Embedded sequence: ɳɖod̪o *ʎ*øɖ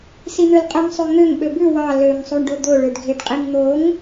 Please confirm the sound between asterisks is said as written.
no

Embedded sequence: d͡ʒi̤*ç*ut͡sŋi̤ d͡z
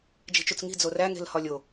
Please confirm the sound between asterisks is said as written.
no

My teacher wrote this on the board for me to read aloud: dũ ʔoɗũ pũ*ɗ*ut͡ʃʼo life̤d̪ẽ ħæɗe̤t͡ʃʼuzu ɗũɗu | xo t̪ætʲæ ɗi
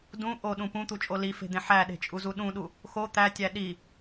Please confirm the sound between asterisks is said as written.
no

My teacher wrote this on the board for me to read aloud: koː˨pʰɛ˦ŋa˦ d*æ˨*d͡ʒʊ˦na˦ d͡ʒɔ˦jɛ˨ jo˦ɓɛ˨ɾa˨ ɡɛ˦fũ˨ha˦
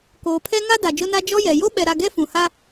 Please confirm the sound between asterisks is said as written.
no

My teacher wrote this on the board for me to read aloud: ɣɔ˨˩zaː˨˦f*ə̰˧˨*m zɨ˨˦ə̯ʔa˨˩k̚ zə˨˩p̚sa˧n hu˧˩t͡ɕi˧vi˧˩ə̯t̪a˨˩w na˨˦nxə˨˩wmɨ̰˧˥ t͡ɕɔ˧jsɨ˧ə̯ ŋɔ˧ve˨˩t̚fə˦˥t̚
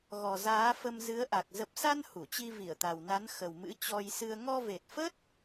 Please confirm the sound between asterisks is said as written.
no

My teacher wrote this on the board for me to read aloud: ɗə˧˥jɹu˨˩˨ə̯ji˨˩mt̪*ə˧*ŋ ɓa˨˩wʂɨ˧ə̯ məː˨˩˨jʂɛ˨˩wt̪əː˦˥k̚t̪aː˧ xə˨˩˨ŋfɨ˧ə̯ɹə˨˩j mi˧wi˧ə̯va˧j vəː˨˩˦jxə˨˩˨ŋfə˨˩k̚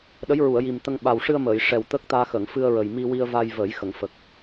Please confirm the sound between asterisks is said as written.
yes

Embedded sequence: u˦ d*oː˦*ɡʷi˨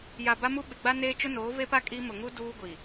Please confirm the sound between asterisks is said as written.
no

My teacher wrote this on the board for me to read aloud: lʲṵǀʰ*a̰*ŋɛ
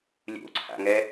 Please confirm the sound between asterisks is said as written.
yes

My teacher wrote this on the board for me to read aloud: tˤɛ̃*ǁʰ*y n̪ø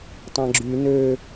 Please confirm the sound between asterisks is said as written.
no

